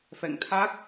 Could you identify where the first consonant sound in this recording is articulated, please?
labial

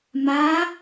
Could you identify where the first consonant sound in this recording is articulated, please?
labial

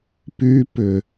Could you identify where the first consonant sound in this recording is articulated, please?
labial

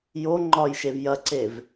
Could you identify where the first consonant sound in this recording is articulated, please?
palatal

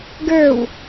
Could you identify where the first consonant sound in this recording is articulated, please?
velar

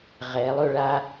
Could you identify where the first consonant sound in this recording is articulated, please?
uvular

